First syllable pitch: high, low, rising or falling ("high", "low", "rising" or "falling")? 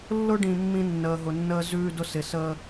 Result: high